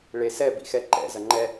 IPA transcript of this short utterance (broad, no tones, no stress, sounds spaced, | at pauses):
ɭ e s ɛ b ḭ x ɛ ǃ ɛ̰ z ɐ ŋ͡ǃ ɛ